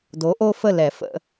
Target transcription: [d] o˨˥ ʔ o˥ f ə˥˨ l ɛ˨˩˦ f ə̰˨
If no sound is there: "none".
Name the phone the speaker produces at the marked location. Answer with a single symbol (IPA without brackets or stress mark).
d